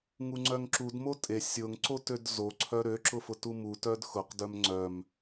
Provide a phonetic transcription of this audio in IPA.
ŋ u ŋ͡ǀ œ ŋ ǁ u d m o tʼ e sʲ ʊ ŋ ǀ o t ø d z o ǀʰ œ ɾ ø ǁ ʊ f ʊ t u m u t œ d x ʊ q d œ m ŋ͡ǀ œ m

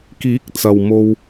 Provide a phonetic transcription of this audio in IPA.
k iː˨˥ k̚ t͡s ɐ˨ w m o˧ w

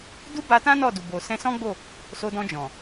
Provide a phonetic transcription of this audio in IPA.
d u˦ b a˧ t ã˦ n ɔ˦˨ d u˨ b o˨ s ɛ̃˧ s ɔ̃˦ ɡ͡b o˦˨ | s o˧ d ɔ̃˧ d͡ʒ ɔ̃˨

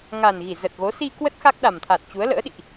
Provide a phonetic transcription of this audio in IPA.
ŋ a˨˩ n ɣ i˧˩ z ə˨˩ t̚ ɣ o˨˦ s i˧ k w ə˦˥ t̚ x a˦˥ k̚ ɗ a˨˩ m t̪ʰ a˨˩ t̚ t͡ɕ u˨˦ ə̯ l ə̰ː˧˥ ɗ ḭ˧˨ ʔ

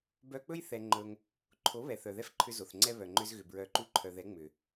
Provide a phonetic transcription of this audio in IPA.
b œ˧ k͡p ɵ˦ j θ ɛ˧ ŋ͡ǃ ɵ˧ ŋ | ǃʰ o˨˦ β ɛ˨ θ œ˨ ð ɛ˦ f ǃʰ ʏ˧ z o˨ θ ŋ͡ǀ ɛ˦ β œ˨ ŋ͡ǃ ʏ˧ z ɣ ʏ˨ b ɹ œ˨˦ ǃ u˧ ǃʰ œ˨ ð ɛ˨˦ ŋ͡m ʏ˨

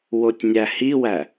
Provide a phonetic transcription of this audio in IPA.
w o tʲ nʲ æ h i w æ

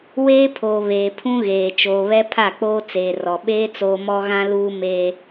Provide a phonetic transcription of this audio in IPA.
w eː˦ pʰ oː˨ β eː˨ pʰ ũ˦ ɣ eː˨ t͡ʃ oː˨ β ɛ˦ pʰ a˦˨ k͡p oː˦ t͡s eː˨ r ɔ˨ ɓ eː˦ t͡s oː˦ m ɔ˦ ɣ ã˦ l uː˦ m eː˦

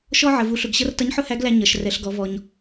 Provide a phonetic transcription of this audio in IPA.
ʃ ɔ˧ ʕ ə˩ v u˩˧ ɬ ʊ˩ ɡ ɕ ʌ˧ r t ʌ˧˥ ɲ ħ ʊ˥ h æ˧˥ ɡ l æ˧ ɲ ʌ˩ ʃ r ɛ˩˧ ɬ ɡ ɔ˩˧ v ɔ˩ ɲ

